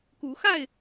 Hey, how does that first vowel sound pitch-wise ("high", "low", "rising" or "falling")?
rising